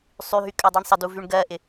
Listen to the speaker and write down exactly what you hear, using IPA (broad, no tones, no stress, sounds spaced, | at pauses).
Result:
sˤ y ɦ y kʼ ɜ dˤ e ɳ sˤ ə d u v y ɳ ɡ ɜ ʔ ɪ